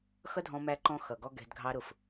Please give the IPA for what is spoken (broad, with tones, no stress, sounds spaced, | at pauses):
x ʌ˦ dʱ ɔ̃˧ m æ˧ ǃ ɔ̃˦ x ʌ˨ ɡ ɔ˦ ɡ ɛ̤˧ d ɡʱ ɑ˦ ɾ ʊ˦˨ f